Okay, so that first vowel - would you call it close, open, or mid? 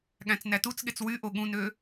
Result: open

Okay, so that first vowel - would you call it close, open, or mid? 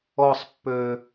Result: mid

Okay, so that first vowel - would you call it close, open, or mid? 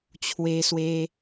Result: mid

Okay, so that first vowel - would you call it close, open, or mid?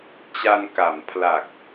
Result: open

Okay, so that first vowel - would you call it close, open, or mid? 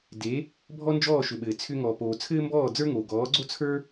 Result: mid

